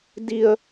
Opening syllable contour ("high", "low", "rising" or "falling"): low